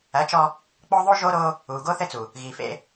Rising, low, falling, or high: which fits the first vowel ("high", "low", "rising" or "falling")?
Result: rising